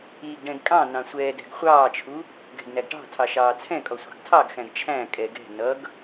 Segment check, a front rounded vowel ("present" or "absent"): absent